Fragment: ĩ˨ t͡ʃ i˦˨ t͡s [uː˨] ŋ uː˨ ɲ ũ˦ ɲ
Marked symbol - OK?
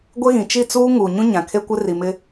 no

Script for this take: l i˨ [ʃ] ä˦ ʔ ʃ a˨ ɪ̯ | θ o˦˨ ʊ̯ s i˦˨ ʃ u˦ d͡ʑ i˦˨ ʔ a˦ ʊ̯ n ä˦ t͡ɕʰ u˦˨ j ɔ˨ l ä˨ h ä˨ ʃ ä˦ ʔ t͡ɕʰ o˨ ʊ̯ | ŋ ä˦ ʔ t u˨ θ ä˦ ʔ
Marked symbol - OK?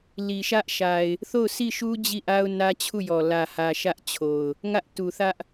yes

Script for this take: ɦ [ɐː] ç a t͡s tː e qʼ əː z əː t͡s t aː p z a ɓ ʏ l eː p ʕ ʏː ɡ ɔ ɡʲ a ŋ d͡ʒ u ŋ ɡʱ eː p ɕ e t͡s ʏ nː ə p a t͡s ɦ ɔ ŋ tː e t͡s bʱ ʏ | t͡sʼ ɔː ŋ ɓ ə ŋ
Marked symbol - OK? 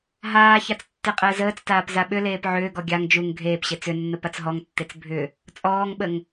no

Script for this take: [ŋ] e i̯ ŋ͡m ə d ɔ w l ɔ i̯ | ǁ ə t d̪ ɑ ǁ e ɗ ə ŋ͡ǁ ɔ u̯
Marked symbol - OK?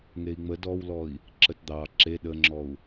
yes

